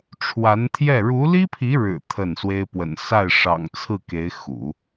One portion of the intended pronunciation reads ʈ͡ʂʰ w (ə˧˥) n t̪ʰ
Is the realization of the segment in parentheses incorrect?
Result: yes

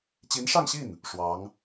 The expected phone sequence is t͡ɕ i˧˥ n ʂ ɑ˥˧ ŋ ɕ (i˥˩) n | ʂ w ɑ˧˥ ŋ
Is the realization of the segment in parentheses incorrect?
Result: no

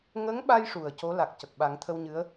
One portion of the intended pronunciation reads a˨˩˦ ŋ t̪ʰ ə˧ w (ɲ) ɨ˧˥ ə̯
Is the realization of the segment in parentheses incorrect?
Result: no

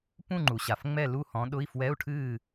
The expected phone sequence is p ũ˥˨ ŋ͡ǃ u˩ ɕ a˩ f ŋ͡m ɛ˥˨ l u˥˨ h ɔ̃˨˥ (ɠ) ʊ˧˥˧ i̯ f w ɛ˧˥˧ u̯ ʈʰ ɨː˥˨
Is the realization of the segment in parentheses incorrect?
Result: yes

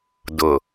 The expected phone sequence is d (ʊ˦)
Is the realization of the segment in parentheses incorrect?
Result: yes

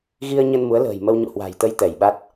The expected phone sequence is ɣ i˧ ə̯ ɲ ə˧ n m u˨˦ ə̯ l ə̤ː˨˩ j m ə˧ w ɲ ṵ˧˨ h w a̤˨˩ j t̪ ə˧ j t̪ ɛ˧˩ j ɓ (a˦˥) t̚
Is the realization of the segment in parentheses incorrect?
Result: no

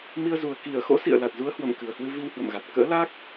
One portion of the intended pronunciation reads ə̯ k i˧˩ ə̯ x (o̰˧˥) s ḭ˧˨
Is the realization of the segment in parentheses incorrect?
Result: no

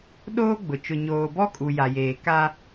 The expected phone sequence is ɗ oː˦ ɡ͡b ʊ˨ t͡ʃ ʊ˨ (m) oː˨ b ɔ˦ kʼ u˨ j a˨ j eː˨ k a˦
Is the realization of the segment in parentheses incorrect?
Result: yes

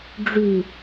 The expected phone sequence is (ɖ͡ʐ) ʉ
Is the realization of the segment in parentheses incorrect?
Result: no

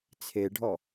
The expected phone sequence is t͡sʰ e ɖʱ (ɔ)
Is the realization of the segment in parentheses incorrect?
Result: no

